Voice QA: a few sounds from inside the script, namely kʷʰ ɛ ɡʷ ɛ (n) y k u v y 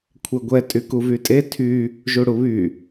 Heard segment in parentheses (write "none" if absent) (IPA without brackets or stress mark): tʼ